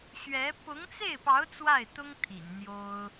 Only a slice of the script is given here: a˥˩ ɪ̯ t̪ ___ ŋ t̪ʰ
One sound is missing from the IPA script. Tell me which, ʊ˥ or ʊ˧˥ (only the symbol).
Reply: ʊ˥